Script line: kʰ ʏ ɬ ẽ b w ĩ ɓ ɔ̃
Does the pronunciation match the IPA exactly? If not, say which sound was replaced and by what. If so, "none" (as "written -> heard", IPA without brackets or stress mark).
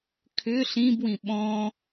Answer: ẽ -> ĩ